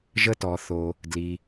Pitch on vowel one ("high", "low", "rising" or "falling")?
high